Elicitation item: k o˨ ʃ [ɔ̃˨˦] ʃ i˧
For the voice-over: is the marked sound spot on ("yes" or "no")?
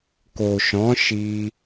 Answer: yes